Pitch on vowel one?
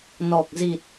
low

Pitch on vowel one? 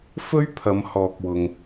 high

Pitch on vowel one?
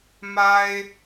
high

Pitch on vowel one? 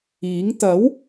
rising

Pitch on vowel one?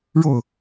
falling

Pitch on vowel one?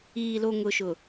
low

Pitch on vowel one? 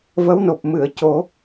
rising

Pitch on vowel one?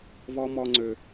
high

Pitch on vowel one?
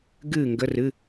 falling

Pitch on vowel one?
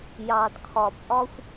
low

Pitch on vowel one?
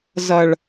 low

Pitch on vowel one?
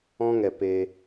high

